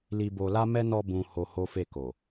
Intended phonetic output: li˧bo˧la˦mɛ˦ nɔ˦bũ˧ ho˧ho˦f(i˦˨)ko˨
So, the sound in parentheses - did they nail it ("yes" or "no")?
no